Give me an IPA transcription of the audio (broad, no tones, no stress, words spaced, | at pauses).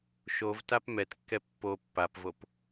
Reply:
ʃovtap mɛtkːɛ pːo pːapvop